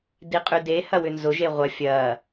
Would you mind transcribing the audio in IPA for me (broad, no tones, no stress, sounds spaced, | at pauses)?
d i qʼ y d e h ɐ w ʏ n z ʊ ʒ e ʁʷ ɐ fʲ ɐ